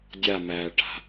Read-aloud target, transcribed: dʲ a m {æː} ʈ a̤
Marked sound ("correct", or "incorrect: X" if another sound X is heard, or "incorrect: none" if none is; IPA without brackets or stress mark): correct